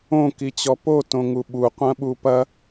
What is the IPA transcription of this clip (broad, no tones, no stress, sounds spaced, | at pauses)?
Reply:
õ k i t͡ɕ ɔ p o t õ ŋ u ɓ u qʷ ɐ̃ ɓ u p ɐ